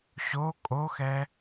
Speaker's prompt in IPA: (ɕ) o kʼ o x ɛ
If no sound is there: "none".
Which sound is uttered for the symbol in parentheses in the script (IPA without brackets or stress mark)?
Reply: ɕ